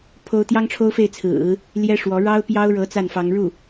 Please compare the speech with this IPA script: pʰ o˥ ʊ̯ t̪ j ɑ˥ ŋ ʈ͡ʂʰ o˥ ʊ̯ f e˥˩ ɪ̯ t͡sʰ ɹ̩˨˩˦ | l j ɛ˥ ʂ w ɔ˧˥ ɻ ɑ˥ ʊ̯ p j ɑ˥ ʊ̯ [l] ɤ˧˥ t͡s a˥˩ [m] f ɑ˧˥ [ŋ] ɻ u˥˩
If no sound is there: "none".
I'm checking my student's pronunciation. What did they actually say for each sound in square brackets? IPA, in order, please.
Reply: ɻ, n, ŋ

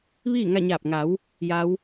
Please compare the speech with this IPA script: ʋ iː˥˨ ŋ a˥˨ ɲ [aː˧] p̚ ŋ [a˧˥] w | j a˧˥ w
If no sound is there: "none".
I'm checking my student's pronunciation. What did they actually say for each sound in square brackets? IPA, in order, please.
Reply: aː˧˩, a˩˧

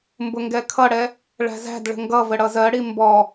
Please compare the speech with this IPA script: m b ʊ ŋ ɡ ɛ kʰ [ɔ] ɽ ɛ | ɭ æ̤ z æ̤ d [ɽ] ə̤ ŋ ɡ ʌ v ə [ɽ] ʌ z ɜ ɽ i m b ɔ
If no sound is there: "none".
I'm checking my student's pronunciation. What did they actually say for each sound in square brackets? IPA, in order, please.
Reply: ʌ, ɭ, ɽ

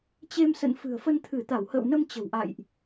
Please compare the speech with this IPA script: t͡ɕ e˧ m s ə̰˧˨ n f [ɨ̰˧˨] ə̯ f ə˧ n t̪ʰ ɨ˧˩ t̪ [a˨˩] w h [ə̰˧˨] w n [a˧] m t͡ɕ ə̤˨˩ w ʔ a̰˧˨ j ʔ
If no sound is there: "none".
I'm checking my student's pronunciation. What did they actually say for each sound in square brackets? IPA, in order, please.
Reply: ɨ̤˨˩, a˧˩, ə̰ː˧˨, ə˧

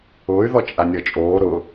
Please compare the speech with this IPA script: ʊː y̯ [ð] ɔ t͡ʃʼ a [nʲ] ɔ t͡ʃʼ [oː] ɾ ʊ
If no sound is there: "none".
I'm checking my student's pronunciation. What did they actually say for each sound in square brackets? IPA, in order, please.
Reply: ð, nʲ, oː

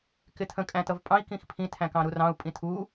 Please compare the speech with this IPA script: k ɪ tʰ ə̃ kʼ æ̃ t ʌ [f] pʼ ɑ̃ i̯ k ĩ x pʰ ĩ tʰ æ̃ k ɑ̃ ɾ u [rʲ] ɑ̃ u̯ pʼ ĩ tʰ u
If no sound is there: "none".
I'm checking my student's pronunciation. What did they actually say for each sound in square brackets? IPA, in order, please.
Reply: v, r

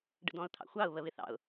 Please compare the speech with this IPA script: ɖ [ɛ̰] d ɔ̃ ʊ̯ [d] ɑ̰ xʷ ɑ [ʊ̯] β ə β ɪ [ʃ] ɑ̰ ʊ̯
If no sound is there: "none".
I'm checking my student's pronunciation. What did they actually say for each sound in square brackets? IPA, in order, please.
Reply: ə̰, t̪ʰ, ʊ̯, θ

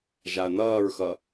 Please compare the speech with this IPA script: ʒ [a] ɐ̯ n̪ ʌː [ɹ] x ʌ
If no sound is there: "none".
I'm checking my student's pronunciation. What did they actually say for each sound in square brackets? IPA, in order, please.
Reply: a, ɹ

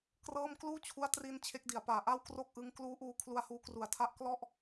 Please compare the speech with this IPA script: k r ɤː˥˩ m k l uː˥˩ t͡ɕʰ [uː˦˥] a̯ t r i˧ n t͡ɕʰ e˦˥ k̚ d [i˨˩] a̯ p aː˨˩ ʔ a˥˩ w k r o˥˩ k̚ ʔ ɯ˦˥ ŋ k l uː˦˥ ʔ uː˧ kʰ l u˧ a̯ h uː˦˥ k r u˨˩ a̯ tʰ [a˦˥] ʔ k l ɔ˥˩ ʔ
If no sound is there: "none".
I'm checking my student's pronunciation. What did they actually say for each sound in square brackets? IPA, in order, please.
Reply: u˦˥, i˨˩, a˥˩

